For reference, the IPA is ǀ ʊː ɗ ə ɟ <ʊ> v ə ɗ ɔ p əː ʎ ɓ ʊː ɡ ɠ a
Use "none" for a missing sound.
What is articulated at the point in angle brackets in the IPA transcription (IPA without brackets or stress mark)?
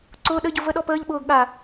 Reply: ʊ